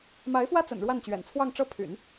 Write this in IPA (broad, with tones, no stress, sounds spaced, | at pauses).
m a˧˥ ɪ̯ f w ä˥ t͡s ə̰˨˩ n ɻ w a˥˩ n t͡ɕ ɥ ɛ̰˨˩ n t͡sʰ w ɑ˥˧ ŋ ʈ͡ʂ ɤ˥˩ pʰ y̰˨˩˦ n